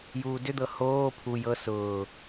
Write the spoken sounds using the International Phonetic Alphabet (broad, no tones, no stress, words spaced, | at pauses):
juːdʏd̪ɤ hoː pʰu jɤ sʊː